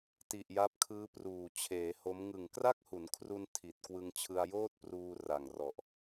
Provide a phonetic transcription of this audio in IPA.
t i˨˩ ʔ j a˦˥ p̚ kʰ ɯː˦˥ p r uː˨˩ t͡ɕʰ eː˩˦ h o˦˥ m ŋ ɯ˨˩ ŋ k r a˥˩ k̚ h u˩˦ n kʰ r u˧ n tʰ i˨˩ t̚ k w ɯ˧ ŋ t͡ɕʰ ɯ˧ a̯ j oː˥˩ t̚ p r uː˧ r a˨˩ ŋ r ɔ˨˩ ʔ

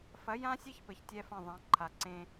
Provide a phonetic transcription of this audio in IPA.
f ɐ˨˦ j ã˦ sʲ e˦ ç p ɘ˨ ç tʲ ɛ˦ f ɐ̃˦˨ ðˤ ã˨˦ ǃʰ a˨ ǀ ẽ˦

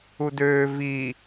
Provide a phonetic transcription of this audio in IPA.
u d øː v i

